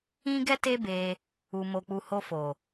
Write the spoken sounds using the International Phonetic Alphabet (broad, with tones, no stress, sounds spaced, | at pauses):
ĩ˦ ɡ ɛ˦ t e˦ b e˧ | u˨ m o˨ k͡p u˨ h o˧ f o˨